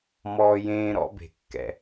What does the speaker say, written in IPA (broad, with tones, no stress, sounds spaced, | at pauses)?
m ɔː˧ j ẽː˧ ɾ ɔ̰˧ b e̤˩ kː ɛ̰˩